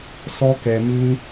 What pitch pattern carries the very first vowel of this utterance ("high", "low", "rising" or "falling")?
high